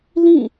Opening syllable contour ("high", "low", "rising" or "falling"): falling